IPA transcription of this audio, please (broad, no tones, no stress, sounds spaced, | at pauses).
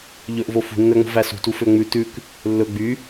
ʎ ɵ ʔ v o f ṳ nː œ ŋ͡m o̤ v æ s ṳ t u f ø ŋ͡m ʉ t ʉ k | lː ɵ ɡ͡b y